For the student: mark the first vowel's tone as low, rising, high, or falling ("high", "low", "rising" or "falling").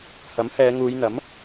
rising